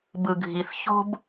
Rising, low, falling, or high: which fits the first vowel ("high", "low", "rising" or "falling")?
low